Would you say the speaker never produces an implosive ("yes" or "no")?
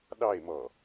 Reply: no